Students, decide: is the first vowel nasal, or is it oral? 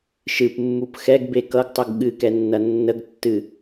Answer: oral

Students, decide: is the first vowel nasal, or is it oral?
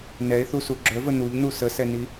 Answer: oral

